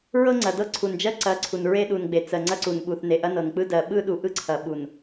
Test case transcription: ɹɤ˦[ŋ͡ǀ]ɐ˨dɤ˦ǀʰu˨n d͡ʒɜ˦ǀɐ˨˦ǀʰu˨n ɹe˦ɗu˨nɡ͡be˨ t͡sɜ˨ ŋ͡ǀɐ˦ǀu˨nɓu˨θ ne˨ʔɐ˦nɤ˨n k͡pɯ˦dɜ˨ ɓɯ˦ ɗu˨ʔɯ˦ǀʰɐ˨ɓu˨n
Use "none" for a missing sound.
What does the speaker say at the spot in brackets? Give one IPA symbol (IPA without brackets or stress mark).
ŋ͡ǀ